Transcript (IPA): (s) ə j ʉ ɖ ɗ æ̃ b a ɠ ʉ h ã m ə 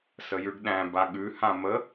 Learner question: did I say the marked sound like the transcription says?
yes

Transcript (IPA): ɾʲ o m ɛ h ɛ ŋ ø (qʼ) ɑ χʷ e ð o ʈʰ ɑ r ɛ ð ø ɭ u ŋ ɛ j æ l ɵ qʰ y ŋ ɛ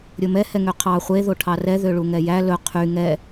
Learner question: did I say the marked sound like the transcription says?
no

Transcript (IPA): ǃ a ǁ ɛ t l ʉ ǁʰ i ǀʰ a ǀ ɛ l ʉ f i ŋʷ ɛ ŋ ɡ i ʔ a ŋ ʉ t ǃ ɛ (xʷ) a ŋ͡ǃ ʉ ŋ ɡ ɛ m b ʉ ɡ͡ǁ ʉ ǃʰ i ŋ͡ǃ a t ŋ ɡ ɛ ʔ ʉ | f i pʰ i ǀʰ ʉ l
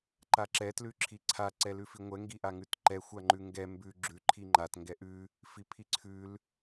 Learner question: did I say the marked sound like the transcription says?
yes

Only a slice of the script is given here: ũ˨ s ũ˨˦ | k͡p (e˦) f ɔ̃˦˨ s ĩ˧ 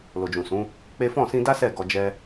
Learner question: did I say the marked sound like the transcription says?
yes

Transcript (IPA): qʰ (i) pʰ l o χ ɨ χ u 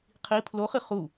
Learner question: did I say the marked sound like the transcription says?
yes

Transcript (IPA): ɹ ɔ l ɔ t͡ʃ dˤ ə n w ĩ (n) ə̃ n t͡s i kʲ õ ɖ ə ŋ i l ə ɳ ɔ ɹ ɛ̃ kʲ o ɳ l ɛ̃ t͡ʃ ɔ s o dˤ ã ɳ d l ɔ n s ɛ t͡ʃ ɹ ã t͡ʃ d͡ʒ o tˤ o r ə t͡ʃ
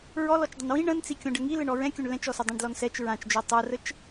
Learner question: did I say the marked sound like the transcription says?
no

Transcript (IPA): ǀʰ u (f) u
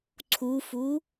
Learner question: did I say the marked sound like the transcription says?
yes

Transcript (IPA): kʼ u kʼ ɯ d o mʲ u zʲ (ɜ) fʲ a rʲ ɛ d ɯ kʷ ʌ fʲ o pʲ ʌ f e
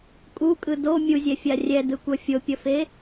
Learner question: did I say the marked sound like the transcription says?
no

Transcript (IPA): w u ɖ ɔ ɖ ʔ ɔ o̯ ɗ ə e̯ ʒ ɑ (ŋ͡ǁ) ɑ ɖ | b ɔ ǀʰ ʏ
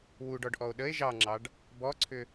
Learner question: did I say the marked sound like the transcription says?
yes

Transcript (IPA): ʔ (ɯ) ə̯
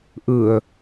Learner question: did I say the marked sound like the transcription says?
yes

